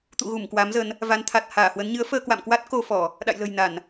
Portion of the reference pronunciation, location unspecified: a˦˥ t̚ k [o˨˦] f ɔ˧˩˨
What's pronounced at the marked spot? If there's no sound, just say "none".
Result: o˧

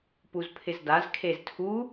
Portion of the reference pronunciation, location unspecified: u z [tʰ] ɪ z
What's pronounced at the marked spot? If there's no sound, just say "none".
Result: pʰ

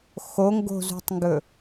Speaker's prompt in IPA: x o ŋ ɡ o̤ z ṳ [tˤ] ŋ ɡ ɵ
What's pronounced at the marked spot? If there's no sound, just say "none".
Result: tˤ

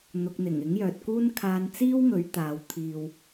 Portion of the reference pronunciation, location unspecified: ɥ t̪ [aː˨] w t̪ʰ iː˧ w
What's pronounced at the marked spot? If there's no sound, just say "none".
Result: aː˨˧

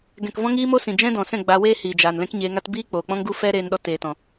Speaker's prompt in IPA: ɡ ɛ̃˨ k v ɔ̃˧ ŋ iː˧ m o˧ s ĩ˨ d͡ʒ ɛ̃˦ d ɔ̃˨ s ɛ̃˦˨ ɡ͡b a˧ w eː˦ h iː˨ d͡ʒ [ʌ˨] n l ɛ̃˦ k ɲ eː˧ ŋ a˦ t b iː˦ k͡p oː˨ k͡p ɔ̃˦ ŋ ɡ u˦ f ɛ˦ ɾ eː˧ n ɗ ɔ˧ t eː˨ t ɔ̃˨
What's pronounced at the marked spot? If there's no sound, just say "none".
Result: a˨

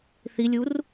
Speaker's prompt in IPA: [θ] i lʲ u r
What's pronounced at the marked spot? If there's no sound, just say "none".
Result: θ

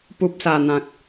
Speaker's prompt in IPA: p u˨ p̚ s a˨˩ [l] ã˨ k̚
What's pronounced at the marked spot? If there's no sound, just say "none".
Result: n̪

